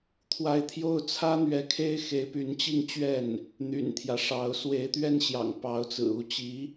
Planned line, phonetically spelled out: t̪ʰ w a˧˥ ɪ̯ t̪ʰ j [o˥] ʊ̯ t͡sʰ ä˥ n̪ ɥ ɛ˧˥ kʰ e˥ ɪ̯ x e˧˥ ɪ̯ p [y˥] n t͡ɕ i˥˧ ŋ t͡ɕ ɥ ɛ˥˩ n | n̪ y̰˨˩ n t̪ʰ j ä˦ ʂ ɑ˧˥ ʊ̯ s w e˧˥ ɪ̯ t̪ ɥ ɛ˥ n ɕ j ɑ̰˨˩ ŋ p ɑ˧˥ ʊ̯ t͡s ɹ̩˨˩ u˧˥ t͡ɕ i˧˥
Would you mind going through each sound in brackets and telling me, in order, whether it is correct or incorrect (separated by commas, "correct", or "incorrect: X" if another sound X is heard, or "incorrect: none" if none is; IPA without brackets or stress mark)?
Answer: correct, incorrect: y˧˥